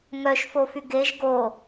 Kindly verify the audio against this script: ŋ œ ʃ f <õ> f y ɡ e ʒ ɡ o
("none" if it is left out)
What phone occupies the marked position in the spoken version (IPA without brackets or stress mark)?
o